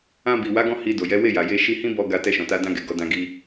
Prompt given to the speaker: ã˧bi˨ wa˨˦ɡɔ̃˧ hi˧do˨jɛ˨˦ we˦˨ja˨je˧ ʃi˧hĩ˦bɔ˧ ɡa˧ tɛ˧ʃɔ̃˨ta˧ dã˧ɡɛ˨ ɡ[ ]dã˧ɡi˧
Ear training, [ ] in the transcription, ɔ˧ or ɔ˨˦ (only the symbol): ɔ˨˦